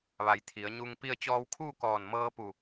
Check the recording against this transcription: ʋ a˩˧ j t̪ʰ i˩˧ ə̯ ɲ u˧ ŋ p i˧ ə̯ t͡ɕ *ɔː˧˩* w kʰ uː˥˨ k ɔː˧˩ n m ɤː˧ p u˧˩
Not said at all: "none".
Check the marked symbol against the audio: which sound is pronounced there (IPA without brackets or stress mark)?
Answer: ɔː˧